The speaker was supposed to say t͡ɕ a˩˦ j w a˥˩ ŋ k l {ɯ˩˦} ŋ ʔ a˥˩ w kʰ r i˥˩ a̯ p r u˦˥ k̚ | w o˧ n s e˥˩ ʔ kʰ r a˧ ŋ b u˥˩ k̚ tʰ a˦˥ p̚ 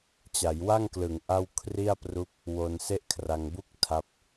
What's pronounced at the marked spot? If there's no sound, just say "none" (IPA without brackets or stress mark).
ɯ˩˦